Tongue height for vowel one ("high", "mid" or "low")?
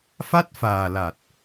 low